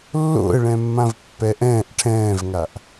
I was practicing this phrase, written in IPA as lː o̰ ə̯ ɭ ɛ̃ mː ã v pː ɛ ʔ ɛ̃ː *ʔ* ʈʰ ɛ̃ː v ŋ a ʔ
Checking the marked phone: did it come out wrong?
no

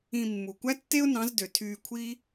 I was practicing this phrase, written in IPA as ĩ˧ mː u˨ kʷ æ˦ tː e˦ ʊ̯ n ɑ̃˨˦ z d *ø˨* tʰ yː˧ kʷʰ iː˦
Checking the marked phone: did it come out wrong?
no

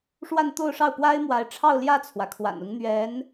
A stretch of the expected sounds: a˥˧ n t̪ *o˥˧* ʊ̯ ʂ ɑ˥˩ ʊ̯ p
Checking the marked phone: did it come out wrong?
no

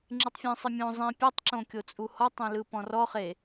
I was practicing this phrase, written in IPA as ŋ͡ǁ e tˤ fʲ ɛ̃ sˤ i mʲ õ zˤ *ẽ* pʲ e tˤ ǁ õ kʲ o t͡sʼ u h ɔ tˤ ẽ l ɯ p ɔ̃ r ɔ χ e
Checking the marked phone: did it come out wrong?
yes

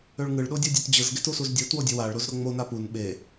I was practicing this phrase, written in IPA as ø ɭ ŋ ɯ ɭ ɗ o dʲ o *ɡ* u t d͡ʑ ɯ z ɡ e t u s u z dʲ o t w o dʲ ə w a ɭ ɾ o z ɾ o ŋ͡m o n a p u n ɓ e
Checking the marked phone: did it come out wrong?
yes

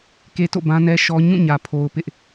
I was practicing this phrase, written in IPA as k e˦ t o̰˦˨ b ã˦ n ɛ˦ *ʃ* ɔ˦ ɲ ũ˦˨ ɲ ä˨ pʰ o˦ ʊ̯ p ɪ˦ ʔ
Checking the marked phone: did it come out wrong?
no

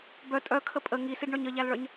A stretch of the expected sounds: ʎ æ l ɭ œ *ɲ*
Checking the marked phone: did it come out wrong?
no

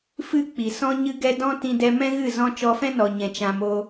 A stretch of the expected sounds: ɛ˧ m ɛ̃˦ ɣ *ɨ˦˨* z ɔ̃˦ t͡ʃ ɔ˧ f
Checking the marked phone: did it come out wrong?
no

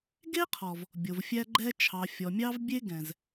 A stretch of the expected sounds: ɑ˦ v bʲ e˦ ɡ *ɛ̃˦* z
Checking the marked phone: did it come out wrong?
yes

